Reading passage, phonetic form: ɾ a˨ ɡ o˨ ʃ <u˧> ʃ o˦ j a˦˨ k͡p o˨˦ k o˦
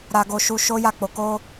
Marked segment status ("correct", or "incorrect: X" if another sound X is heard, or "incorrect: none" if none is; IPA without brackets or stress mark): correct